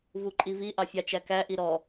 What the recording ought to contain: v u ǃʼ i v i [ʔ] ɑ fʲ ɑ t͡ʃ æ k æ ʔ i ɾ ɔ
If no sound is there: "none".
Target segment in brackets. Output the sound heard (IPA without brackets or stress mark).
ʔ